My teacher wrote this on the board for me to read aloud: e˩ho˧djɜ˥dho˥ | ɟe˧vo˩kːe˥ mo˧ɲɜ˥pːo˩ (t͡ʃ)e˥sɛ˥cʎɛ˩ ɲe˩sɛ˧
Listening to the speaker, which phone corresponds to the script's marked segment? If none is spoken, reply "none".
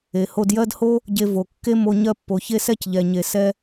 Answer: ç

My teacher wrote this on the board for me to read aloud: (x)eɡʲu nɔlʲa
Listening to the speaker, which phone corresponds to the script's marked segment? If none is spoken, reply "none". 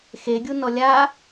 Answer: x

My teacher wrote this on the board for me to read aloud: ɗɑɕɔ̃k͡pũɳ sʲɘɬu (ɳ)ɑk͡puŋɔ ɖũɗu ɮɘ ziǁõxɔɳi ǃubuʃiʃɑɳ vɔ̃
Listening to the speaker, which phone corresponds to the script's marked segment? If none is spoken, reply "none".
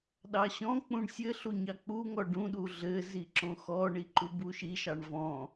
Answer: ɲ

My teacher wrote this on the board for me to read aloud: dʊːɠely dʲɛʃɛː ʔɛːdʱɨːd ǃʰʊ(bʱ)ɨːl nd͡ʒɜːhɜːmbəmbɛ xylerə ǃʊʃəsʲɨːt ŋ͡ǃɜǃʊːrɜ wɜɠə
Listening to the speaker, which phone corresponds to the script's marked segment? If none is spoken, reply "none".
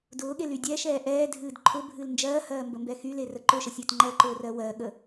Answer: bʱ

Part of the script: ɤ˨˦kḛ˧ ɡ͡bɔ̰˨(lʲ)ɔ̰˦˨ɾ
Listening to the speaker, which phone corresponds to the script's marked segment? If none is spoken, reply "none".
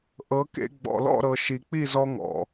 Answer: l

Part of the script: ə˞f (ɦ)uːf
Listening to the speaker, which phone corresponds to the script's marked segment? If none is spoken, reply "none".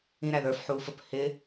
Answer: ħ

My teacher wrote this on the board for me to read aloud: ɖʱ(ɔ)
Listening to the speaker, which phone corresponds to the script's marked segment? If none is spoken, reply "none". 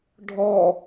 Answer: ɔ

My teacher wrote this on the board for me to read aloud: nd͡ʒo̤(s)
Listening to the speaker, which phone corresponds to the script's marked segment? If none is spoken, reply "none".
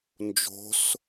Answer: s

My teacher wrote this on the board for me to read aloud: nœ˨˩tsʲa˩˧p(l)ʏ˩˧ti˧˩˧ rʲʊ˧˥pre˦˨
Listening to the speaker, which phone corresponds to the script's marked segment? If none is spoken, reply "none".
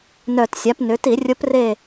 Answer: n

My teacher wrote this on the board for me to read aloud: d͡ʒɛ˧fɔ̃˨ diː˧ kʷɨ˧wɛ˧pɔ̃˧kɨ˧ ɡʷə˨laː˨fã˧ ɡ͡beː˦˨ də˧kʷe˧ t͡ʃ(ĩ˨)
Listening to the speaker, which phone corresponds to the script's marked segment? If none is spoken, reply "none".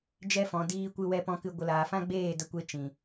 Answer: ĩ˨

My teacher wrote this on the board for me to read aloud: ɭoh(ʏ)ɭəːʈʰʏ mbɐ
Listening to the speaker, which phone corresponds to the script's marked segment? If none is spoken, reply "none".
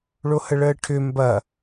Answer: ə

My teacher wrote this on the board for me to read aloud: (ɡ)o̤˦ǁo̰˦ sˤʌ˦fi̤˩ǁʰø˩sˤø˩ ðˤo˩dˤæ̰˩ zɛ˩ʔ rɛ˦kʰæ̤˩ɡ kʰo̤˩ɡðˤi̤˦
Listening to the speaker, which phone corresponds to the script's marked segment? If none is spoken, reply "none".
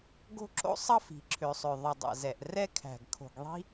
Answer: ɡ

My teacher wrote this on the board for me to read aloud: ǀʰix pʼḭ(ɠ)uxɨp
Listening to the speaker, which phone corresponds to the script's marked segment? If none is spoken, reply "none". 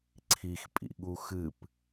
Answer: ɠ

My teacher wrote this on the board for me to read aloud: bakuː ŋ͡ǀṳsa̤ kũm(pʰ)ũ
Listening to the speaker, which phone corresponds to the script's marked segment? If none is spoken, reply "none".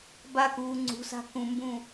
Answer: b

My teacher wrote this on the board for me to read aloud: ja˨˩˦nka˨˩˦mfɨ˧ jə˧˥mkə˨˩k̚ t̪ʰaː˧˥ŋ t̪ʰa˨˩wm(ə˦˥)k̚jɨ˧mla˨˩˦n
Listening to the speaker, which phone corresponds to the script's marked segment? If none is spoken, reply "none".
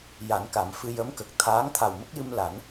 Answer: ə˦˥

